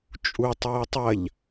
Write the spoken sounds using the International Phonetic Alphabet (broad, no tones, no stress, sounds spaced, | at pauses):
t͡ʃʼ u tˤ ɨː tˤ ɐ ʎ